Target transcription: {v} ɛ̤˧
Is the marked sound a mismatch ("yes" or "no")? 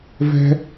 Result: no